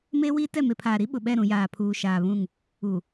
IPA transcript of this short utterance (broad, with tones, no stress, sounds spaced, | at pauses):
m eː˦ w iː˦ t ɛ˦˨ m e˨ pʰ aː˨ ɾ i˦ ɓ ʊ˨ ɓ ɛ˦˨ ɾ ũ˨ j aː˨ pʰ uː˨ ʃ aː˨ β ũ˦˨ ŋ | u˨